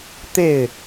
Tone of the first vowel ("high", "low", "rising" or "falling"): falling